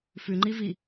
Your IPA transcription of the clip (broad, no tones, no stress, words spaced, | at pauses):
fʉŋ͡ǃivi